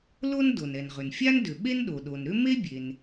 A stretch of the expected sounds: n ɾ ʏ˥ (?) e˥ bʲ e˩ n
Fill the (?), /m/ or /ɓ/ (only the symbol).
m